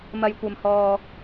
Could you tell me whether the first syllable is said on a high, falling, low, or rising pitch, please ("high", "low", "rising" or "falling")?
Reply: low